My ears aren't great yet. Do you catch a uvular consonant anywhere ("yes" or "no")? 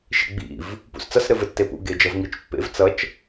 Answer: no